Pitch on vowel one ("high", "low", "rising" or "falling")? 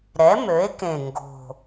rising